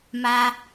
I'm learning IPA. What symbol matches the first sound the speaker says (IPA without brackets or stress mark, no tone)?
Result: m